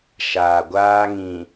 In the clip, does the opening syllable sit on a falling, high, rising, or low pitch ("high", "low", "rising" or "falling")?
low